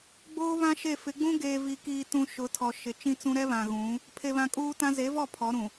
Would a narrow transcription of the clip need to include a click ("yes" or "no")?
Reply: no